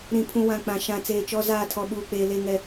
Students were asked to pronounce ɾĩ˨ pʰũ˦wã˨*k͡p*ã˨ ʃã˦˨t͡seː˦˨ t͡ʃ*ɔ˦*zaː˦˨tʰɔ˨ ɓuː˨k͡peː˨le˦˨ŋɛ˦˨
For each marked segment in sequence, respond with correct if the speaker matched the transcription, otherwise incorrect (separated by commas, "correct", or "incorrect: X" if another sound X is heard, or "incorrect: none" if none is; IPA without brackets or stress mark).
correct, correct